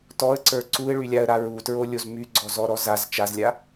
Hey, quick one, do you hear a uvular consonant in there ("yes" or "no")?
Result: no